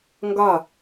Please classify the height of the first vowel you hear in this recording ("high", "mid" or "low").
low